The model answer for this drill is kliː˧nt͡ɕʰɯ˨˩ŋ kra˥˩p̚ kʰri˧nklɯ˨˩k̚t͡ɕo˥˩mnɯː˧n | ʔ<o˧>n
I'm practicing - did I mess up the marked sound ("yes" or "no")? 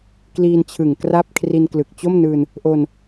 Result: no